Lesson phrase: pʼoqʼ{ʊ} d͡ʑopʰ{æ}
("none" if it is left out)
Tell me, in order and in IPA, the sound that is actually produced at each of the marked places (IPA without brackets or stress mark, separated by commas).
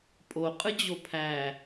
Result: ɯ, æ